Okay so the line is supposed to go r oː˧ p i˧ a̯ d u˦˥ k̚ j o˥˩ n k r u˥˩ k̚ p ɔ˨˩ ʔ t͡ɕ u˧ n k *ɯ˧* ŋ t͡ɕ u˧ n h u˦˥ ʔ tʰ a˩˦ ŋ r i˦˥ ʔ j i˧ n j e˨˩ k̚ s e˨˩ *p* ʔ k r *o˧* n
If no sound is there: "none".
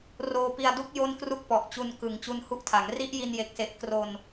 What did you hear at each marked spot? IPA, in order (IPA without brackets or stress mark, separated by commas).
ɯ˩˦, none, o˧